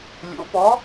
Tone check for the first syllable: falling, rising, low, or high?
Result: rising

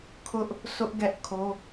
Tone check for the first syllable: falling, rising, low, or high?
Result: high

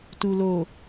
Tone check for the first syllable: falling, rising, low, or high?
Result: low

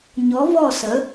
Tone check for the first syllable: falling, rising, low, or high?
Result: rising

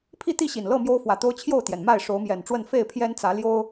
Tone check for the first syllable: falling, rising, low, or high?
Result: falling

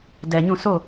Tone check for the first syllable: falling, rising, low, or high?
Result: low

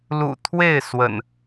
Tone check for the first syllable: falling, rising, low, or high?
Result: low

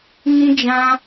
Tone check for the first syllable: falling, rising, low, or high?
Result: high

